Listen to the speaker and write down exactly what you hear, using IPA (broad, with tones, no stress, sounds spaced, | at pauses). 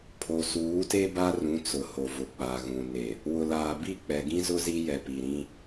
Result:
pʰ o˨ s uː˨˦ t e˦ b a˦ r ũ˨˦ t͡s ʊ˨ h o˨ v ʊ˨ k͡p a˨ ɣ ũ˨ n e˨ | w ʊ˨ l aː˨ b i˦˨ k͡p ɛ˨ ɡ ĩ˦ z ʊ˦ z i˦ j ɛ˨ p i˨ ɾ ĩ˦